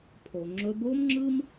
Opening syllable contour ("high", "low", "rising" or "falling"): low